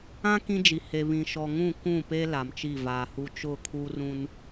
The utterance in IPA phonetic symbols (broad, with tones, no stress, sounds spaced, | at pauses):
ã˦ k ĩ˦ d͡ʒ i˨ h e˨ β ĩ˨ ʃ ɔ˨ ŋ ũ˦˨ k ũ˦˨ p e˦ l a˨ m t͡ʃ i˦˨ v aː˨ h u˦ t͡ʃ ʊ˦˨ kʰ u˦ r ũ˦ n